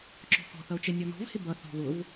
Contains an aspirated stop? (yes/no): no